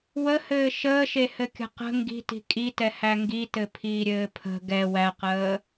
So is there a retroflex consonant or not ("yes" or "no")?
no